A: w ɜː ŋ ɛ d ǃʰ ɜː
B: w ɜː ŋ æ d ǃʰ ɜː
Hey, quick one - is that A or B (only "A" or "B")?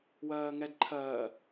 A